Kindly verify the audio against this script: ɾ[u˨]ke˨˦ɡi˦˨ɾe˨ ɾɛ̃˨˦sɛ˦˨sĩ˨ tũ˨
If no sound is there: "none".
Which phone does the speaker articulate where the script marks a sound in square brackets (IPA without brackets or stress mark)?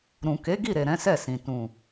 ũ˨